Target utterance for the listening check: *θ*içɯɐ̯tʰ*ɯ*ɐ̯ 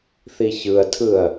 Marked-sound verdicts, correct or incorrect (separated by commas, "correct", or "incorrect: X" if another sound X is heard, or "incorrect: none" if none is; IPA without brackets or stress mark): correct, correct